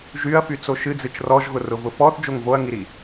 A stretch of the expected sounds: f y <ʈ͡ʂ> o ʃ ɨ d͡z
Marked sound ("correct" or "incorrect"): incorrect